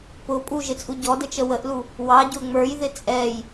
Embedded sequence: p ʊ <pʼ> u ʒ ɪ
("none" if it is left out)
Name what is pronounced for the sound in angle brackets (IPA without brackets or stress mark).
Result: pʼ